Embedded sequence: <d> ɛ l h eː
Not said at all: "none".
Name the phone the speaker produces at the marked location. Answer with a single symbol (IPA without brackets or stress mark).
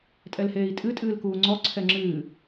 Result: tʼ